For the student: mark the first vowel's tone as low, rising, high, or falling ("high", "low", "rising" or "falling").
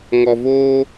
low